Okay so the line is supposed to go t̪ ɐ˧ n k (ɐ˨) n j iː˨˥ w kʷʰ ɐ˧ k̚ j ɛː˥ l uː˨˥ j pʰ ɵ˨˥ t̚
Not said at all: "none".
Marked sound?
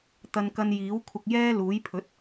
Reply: ɐ˧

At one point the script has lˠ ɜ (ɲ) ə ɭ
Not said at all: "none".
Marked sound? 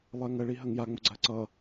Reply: ŋ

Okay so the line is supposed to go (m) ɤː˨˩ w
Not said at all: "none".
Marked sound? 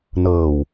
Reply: n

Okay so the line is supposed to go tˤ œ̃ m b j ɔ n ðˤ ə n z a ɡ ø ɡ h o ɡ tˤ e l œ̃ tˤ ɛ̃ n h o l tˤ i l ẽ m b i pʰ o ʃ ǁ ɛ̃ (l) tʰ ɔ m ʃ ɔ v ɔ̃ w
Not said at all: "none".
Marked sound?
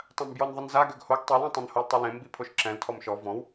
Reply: l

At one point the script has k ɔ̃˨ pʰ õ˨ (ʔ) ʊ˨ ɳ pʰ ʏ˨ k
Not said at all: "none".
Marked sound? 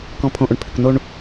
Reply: ʔ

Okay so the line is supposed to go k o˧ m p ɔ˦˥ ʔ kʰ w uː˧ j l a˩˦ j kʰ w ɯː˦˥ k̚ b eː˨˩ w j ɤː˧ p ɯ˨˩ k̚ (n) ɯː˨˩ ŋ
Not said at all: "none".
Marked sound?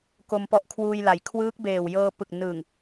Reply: n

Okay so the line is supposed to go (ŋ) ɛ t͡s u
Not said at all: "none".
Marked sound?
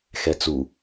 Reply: x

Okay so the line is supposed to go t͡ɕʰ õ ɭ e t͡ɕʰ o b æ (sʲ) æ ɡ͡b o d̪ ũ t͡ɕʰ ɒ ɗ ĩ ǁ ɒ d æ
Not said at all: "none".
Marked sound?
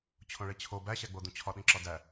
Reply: ɕ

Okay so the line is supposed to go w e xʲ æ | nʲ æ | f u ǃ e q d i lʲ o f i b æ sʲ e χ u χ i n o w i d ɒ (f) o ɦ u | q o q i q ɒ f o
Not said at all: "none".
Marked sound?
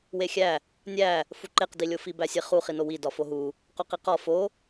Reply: f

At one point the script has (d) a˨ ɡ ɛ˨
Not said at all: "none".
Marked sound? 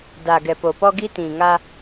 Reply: d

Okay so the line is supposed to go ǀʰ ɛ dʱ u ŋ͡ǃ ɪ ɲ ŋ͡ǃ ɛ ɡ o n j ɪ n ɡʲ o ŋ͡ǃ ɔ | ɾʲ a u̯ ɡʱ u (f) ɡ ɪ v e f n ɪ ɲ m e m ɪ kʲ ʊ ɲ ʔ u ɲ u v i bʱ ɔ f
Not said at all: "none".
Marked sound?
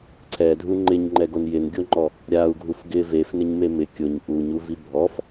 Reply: f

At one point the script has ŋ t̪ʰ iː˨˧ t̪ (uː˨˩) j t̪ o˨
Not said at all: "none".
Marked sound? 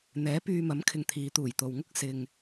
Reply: uː˨˩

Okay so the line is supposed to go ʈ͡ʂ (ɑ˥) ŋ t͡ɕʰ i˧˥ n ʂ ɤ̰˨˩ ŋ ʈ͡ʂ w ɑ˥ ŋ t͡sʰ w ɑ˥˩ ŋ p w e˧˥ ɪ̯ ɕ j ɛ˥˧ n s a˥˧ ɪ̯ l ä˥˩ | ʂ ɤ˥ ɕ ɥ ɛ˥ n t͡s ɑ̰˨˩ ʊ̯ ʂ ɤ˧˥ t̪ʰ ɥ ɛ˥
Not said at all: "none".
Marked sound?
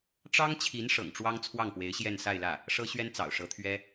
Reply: ɑ˥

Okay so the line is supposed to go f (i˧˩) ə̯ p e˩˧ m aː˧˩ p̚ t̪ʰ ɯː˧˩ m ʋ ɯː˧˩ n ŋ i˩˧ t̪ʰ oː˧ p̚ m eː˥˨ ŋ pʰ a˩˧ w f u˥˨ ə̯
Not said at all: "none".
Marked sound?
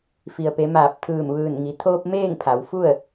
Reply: i˩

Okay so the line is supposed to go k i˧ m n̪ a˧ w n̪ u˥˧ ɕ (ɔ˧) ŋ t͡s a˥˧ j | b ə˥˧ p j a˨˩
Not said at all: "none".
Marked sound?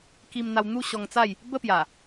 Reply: ɔ˧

